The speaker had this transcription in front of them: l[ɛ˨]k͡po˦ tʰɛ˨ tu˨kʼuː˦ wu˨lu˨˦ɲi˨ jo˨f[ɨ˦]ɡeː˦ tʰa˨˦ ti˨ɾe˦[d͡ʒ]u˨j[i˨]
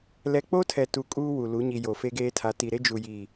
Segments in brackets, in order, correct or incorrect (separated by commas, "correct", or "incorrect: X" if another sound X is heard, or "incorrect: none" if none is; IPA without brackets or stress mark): correct, incorrect: e˦, correct, correct